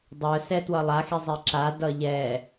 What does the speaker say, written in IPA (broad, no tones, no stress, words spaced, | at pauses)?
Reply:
dˤœsɛ twʌlˠaxi zˤiǁa dʌʎɛ